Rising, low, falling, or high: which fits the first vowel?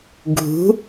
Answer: rising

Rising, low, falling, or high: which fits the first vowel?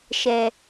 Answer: low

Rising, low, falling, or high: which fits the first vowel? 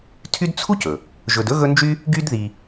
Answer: high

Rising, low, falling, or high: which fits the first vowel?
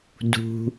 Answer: low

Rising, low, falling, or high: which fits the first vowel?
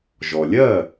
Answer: low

